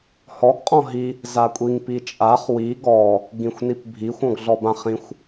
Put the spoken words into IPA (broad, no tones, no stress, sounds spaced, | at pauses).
h ɔ ɡ qʼ ɔ̃ ɦ i | z a kʷʼ i ŋ p i t͡ʃʼ a χ w i ɡ ɔ | ɡ ĩ xʷ n i p bʱ i xʷ ɔ̃ ɡ ɮ ɔ b ã χ ĩ xʷ